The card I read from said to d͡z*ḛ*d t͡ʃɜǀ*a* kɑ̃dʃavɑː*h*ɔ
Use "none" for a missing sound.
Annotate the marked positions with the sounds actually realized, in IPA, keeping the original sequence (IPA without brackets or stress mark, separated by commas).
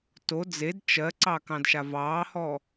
e, ɑ, h